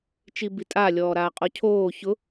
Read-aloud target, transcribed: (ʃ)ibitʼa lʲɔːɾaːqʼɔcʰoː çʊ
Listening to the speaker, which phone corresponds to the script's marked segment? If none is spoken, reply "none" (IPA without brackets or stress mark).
t͡ʃ